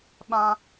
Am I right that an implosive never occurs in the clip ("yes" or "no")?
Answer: no